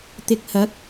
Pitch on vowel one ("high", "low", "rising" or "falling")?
low